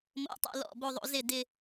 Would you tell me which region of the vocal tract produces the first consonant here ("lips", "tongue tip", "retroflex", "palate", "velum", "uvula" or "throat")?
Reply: lips